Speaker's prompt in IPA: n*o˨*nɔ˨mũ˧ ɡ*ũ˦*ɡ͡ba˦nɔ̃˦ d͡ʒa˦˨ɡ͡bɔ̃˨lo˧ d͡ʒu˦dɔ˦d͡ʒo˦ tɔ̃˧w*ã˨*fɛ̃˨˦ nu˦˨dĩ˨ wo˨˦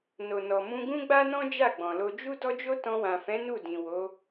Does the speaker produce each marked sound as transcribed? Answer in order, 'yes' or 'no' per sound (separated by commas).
yes, yes, yes